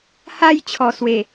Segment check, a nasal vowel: absent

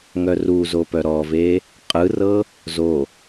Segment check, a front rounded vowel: present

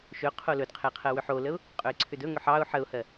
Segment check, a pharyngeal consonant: present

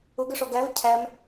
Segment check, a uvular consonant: absent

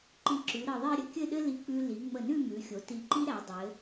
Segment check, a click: present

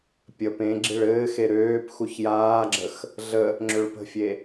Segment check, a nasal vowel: present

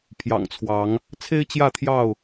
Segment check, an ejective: absent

